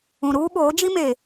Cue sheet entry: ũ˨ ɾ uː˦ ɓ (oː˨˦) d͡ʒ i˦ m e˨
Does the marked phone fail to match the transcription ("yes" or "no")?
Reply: no